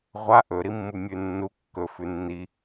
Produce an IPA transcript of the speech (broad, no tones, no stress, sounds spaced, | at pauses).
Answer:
ʁʷ a ʔ ɵ ɾ i mː u mʲ ʉ nː u kː ɵ f ʉ nː i